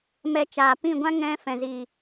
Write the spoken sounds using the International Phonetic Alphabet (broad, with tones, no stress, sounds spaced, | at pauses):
m ɛ˦ t͡ʃ aː˧ p ĩ˦˨ ɡʷ ã˦ ŋ ɛ̃˦ f ɛ̃˨ z i˨